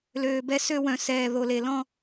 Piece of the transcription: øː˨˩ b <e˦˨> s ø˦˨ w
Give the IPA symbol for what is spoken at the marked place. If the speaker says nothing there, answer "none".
ɛ˦˨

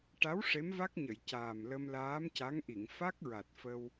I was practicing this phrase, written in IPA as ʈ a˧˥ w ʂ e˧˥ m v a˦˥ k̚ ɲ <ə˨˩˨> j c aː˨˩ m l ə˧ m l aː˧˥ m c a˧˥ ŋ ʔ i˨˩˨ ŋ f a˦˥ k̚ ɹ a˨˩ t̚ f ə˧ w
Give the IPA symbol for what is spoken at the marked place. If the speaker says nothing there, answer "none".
ə˨˩˨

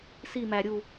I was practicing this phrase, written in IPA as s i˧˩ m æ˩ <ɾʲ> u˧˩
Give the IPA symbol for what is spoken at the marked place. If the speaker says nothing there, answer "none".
ɾʲ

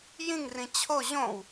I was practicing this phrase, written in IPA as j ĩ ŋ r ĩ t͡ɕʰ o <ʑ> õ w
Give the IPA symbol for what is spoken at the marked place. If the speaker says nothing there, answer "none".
ʑ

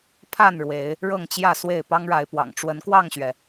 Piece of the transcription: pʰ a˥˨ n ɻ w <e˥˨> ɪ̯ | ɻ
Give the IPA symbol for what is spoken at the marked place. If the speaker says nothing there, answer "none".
e˨˦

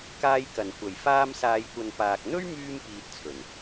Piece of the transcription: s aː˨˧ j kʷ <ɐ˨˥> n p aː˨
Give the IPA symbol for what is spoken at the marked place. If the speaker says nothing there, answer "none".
ɐ˨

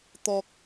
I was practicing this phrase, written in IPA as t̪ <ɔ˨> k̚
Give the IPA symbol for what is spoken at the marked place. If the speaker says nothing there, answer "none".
ɔ˨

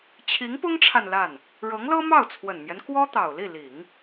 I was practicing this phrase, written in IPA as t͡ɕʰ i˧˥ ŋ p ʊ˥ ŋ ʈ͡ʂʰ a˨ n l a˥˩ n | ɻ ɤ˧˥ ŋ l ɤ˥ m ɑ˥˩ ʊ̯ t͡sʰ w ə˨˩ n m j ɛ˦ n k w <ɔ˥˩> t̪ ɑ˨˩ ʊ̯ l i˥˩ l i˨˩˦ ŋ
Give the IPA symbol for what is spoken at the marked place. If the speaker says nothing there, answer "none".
ɔ˥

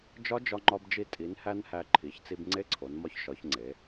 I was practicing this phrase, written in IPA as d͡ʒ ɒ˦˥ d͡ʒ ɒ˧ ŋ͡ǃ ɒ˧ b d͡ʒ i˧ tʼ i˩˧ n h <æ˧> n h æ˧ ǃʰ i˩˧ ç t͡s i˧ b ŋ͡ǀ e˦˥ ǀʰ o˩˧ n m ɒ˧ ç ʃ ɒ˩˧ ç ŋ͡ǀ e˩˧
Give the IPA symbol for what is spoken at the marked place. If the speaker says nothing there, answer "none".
æ˧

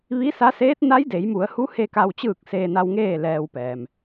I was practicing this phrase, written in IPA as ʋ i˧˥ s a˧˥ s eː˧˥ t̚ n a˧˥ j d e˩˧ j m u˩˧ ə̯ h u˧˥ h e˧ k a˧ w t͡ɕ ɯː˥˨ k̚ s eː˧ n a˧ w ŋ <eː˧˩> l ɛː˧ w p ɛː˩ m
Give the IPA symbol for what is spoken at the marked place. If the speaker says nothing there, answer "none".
eː˥˨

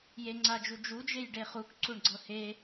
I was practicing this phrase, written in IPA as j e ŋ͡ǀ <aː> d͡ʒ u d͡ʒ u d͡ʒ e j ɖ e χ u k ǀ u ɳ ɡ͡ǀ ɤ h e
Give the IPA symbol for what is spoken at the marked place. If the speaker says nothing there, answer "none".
a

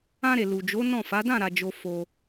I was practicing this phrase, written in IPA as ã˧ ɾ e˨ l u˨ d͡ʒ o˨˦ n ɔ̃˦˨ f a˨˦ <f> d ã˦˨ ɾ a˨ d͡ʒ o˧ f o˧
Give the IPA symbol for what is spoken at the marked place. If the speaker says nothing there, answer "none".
none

